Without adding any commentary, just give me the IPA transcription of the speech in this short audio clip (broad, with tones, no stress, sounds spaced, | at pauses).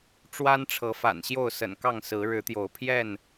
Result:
ʈ͡ʂ w a˦ n ʈ͡ʂʰ ɤ˨˦ f a̰˨˩ n ɕ j o˥˨ ʊ̯ s ə̰˨˩ n k ɑ˥˨ ŋ s ɹ̩˨˦ ɻ ɻ̩˨˦ t̪ j o˨˦ ʊ̯ pʰ j ɛ˥˨ n